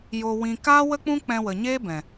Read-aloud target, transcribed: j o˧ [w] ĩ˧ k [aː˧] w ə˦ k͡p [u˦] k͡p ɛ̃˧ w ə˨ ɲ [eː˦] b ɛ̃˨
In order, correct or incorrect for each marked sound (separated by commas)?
correct, incorrect, incorrect, correct